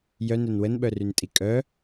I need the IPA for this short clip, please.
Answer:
j œ n œ n w ə n ɓ œ r y n tʼ i kʼ œ

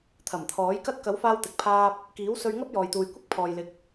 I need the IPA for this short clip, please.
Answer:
t̪ʰ ɐ˨˩ m t̪ʰ ɔː˨˥ j k ɐ˥ t̚ k ɐ˨˥ w f aː˧ w t̪ ɪ˨ k̚ pʰ aː˧ p̚ | k iː˨˥ w s ɵ˧ ɥ ŋ ɐ˥ p̚ j ɔː˨ j t̪ uː˨ j kʷ ɪ˥ k̚ pʰ ɔː˨ j l ɪ˨˥ k̚

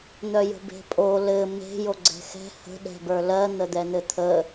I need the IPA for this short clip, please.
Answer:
n̪ œ j ə̤ b e̤ pʼ o l ɘ m e̤ j o ɡ͡ǀ ɛ̤ x ɛ̤ h ə̤ ɗ ɛ̤ b ə˞ l ɜ n̪ ə d̪ ɛ n̪ ɘ t̪ʰ ə

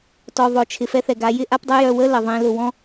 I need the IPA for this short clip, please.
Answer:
t ɔ˨ ðˤ ʊ˨ t͡ʃʰ ɪ˨ f ɛ˦ θ ɛ˨ ɡ a˨˦ j ɪ˦ ʔ a˦ p dˤ ə˦ j œ˨ w ə˦ l ə˨ ðˤ ẽ˦ l ʊ˨ w ɔ̃˦

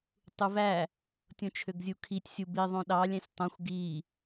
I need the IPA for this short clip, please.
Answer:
tˤ u v æ | tʲ õ t͡ʃʰ ø ɡ zʲ u kʰ i tʲ sʲ u b i ðˤ õ ɗ ɑ lʲ æ̃ sʲ tˤ õ xʷ ɡ i

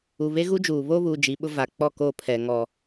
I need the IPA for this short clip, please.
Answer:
u˨ β e˦ ɣ u˦ d͡ʒ uː˨ β o˦ β uː˨ d͡ʒ i˨˦ ɓ ʊ˦ v a˨ k͡p ɔ˦˨ k o˦˨ pʰ ɛ˨ ŋ ɔ˦

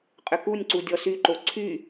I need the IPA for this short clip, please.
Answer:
qʼ ʏ k u nʲ ǀ u dʲ ɔ s y ǃ o ǀʰ y

